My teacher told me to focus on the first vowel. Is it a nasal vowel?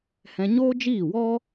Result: yes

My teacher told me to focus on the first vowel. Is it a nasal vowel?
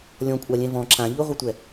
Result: yes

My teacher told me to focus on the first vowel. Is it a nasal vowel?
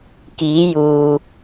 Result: no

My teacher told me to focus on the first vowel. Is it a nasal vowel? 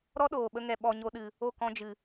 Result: no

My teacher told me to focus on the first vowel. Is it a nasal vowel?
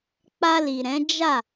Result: no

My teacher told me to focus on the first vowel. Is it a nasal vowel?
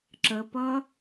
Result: no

